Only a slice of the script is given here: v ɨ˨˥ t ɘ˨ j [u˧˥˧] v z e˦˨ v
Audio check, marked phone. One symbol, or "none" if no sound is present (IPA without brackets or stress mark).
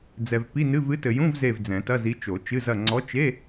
ũ˧˥˧